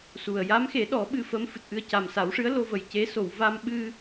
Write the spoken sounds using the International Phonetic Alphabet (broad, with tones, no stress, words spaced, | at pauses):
su˨˩ə̯ ja˧˥mxe˨˩˦ɗɔ˨˩˦ ɓɨ˧fə˧˥m fɨ˨˩t̚ʔɨ˧ə̯ ca˨˩msa˨˩˦wʂɨ˧˥ə̯ lo˧və˨˩jce˧˥ so˨˩˨wva˧mɓɨ˧